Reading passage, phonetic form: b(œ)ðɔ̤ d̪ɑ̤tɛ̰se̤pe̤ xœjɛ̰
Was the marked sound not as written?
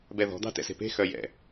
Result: yes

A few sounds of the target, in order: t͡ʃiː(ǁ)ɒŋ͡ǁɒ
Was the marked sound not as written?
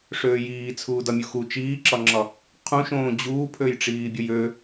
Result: no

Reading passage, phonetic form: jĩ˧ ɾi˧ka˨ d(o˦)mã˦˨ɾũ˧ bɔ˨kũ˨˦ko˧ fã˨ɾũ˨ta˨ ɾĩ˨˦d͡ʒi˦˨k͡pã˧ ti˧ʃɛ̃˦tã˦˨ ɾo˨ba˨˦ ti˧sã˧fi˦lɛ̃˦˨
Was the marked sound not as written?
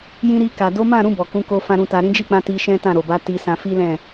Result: yes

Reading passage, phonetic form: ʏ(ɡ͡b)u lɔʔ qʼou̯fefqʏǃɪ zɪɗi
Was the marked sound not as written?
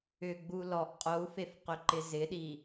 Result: no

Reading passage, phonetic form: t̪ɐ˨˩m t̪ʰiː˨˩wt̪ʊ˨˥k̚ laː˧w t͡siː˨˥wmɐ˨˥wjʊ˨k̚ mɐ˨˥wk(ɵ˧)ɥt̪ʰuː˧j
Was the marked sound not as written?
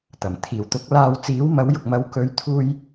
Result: yes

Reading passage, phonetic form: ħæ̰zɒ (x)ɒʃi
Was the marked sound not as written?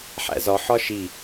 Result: yes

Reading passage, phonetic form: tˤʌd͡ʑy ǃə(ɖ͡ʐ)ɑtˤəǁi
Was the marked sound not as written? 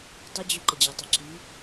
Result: yes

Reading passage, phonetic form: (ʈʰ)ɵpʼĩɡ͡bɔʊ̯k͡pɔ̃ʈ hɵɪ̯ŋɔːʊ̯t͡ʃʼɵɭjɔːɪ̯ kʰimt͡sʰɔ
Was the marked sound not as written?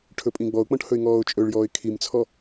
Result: no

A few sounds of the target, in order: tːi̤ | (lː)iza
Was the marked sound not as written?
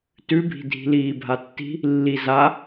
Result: no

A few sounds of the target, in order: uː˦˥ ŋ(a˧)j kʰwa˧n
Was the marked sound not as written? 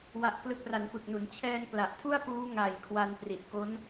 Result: yes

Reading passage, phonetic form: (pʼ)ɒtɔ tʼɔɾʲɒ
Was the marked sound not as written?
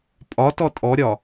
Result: no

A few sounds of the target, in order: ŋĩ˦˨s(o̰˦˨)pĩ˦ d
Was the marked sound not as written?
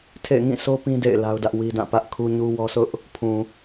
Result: yes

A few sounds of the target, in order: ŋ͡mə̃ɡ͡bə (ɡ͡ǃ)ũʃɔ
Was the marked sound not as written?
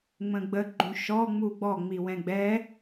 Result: no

